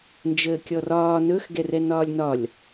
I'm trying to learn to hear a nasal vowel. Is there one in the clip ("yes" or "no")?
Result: no